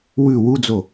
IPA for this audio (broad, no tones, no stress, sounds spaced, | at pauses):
w ʉ w u d͡z o